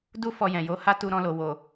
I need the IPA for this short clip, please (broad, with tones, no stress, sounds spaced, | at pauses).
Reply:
d u˦ f ɔ˧ j ɛ̃˨ j o˨˦ h a˦ t u˧ ɾ ɔ̃˧ l o˨ w o˨